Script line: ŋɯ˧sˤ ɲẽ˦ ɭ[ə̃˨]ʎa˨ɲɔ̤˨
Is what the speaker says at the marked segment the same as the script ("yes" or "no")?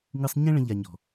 no